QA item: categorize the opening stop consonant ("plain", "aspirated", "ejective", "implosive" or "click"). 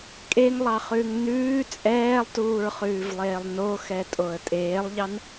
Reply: ejective